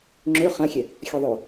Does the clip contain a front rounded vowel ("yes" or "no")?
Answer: yes